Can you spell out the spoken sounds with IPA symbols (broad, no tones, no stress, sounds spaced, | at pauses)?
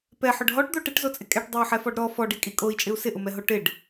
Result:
p ɛ ħ ʊ ɖ ɦ ɔ ʈ d̪ o ʈ ɪ ʈ z o t͡sʼ ɪ kʼ ɛ ʈ dˤ ɛ u̯ ħ ɛ f ɔ ɖ ɾ ɔ f ɔ ɖ i kʼ i kʼ o i̯ t͡ʃʼ ɪ u̯ s ɪ ʔ ʊ m ɛ ɦ o ʈ ɪ ɖ